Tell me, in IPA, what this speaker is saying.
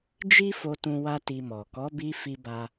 d͡ʒ i˦ f o˧ t ũ˧ w a˦ t i˧ m ɔ˨ k ɔ˨˦ b i˧ f i˧ b a˧

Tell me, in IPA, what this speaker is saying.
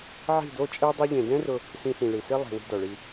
ʕ i̤˦˨ d o˦ t͡ʃʼ e˦ dˤ e˧ ʎ ẽ˨ d ɛ̃˦ r ʊ˧ | s ĩ˧ s ĩ˨ ɭ i˨ s i˦ lˠ i̤˨ w i̤˧ d ɔ˨ ɭ i˧

